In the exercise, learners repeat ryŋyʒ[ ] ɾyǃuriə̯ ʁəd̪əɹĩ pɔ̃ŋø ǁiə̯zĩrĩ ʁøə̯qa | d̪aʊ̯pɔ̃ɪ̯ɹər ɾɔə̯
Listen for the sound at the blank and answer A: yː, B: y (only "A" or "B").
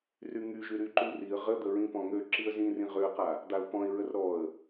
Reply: B